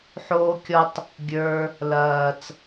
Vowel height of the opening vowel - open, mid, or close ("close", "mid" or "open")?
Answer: mid